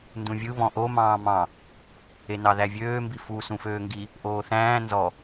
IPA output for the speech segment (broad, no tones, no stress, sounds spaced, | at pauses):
n d ũ vʲ ɯ β ɔ̃ ʔ o m ɑ̃ː m ɑ̃ | e n ɑ ð æ vʲ øː m b i f u s ũ f øː ŋ ɡ i | ʔ oː θ æ̃ː n z ɔ